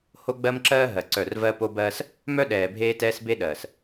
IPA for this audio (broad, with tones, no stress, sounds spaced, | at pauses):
h o˦ ɡ͡b ɜ˦ m ǁ ɜː˦ ɦ ɜ˨ ǀ œ˦˨ r v ɜ˦ p o˦ b ɜː˦ s | m œ˦ ɗ ɛː˨ bʱ eː˦ t ɛː˦ s b e˦ ɗ ɜː˨ s